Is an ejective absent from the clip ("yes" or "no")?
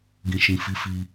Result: yes